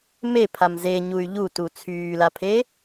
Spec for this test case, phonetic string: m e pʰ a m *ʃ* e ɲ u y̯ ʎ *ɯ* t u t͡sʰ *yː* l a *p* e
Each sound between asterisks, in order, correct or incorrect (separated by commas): incorrect, incorrect, correct, incorrect